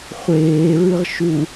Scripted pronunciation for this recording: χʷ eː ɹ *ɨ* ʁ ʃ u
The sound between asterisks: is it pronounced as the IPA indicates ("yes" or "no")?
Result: yes